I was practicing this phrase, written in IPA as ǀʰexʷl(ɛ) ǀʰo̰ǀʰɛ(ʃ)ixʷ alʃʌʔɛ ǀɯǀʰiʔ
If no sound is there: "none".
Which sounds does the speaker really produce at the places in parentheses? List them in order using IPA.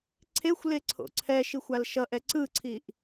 e, ʃ

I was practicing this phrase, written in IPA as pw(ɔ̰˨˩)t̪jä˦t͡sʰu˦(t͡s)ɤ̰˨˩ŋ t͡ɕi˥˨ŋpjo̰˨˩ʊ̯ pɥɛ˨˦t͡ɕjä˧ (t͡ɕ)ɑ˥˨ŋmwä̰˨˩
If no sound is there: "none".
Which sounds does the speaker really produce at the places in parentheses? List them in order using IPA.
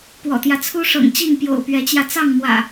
ɔ̰˨˩, ʂ, t͡s

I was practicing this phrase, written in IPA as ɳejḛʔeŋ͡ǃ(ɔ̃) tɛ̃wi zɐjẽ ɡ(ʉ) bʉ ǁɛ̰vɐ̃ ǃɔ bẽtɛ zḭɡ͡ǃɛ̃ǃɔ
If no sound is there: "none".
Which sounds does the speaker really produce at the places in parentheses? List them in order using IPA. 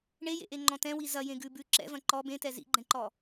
ɔ̃, ʉ

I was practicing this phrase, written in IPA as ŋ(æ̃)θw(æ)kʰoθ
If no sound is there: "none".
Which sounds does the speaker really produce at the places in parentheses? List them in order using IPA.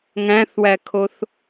æ̃, æ

